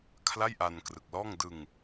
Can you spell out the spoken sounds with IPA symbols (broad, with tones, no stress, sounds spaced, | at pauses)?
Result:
kʰ l a˥˩ j ʔ a˧ n k r ɯ˨˩ k̚ l ɔː˥˩ ŋ d ɯ˧ ŋ